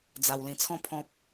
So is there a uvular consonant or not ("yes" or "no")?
no